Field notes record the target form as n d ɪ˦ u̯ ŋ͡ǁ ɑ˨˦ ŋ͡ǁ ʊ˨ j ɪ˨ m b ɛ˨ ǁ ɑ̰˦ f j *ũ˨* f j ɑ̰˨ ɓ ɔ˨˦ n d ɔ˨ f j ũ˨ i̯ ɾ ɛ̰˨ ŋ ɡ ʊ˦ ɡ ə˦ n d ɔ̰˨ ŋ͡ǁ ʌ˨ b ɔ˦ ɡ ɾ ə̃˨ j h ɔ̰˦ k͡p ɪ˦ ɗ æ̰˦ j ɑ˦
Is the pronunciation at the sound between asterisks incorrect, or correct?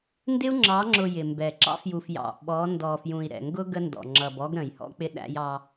incorrect